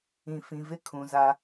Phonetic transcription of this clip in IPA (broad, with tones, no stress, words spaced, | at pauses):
ĩ˨fĩ˨ vɪ˦ kʰũ˨ za˦